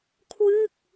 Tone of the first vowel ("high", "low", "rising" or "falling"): falling